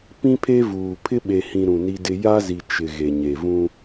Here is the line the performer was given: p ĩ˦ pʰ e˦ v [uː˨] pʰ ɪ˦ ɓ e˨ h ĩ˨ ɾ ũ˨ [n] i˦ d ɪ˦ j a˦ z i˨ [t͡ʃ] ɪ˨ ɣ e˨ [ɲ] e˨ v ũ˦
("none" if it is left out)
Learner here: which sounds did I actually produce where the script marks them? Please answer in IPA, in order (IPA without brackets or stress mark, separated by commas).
uː˨, n, t͡ʃ, ɲ